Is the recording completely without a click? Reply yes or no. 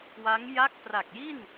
yes